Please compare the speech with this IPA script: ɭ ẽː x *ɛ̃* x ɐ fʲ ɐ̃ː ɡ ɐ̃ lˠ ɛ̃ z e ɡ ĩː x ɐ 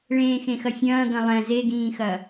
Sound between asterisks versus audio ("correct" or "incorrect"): incorrect